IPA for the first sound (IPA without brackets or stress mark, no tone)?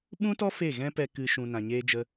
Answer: ɓ